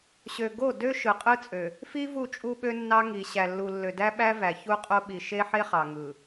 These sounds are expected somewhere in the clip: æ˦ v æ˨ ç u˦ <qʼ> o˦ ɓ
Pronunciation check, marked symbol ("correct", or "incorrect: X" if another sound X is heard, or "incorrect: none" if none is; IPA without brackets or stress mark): correct